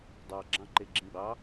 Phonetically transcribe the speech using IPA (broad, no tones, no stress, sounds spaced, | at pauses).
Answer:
dˤ ɑ ɡ͡ǁ ɑ̃ ǃ e ɡ͡ǁ ĩ ɡ͡b ɑ